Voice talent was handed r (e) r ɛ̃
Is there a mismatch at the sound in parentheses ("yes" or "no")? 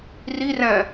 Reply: yes